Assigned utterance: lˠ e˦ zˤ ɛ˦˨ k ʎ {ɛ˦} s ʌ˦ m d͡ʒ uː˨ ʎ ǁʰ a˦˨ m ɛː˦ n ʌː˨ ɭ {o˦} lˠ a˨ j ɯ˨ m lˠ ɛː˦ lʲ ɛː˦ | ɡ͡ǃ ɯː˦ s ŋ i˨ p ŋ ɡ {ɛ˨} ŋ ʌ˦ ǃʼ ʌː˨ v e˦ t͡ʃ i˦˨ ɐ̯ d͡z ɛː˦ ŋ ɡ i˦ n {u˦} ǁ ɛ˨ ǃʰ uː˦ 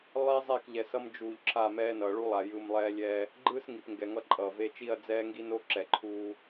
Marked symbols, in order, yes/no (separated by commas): no, no, yes, no